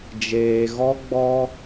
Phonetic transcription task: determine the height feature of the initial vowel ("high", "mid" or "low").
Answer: mid